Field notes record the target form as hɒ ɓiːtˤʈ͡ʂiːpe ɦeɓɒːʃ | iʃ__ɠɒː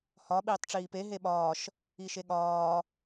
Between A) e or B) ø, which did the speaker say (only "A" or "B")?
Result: A